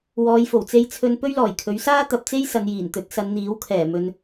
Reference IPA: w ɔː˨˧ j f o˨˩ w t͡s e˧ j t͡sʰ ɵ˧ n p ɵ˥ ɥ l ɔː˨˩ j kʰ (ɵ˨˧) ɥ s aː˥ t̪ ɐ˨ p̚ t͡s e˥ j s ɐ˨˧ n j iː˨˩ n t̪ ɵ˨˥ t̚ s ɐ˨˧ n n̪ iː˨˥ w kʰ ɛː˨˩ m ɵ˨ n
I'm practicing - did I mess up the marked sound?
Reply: yes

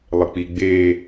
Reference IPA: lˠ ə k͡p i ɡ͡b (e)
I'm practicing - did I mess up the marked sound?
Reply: no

